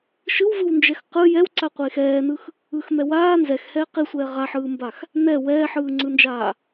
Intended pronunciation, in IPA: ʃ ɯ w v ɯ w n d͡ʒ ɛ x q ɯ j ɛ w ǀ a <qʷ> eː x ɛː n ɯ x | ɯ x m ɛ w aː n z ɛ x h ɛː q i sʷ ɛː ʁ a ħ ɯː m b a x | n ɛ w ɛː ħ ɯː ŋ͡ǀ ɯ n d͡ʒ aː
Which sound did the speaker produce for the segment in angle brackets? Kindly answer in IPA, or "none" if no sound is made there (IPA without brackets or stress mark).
qʷ